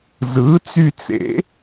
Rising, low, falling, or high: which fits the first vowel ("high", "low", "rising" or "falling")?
rising